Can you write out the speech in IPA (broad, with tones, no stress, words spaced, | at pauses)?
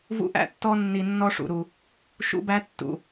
vṵ˦˥ʔæ̰˦˥tːɔ˦˥nːi˨˩ nːɔ˦˥ʂṵ˨˩ɾu˨˩ | ʃṵ˦˥bæ˦˥tːṵ˨˩